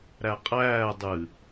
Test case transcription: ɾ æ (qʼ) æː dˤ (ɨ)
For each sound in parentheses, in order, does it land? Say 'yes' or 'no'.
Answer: yes, yes

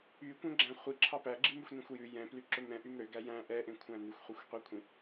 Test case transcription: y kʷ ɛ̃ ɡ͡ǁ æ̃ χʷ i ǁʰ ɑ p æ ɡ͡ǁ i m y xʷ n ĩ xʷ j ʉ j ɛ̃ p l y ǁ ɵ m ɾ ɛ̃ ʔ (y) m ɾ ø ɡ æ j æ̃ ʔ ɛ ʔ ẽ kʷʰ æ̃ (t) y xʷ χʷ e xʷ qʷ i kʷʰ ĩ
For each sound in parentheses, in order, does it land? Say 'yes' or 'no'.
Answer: yes, no

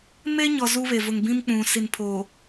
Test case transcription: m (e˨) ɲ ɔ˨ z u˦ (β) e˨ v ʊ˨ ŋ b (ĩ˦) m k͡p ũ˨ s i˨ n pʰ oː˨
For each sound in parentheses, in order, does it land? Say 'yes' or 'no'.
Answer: no, yes, yes

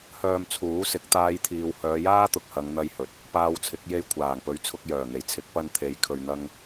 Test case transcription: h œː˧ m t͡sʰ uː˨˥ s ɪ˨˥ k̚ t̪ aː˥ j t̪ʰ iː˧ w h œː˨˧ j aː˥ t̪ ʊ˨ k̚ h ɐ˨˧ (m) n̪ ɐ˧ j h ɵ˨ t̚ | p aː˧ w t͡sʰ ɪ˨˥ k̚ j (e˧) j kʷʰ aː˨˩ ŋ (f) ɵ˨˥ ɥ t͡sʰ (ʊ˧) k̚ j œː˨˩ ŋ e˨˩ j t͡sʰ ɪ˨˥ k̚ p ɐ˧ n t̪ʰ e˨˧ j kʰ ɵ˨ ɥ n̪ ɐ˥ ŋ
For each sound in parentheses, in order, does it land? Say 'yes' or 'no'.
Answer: no, yes, no, yes

